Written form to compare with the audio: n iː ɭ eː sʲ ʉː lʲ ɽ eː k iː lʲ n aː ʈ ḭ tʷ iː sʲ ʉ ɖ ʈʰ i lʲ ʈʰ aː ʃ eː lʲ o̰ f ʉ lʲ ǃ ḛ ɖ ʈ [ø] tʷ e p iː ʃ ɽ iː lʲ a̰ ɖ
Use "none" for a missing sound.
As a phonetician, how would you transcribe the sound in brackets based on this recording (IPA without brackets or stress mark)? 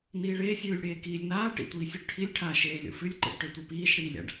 ø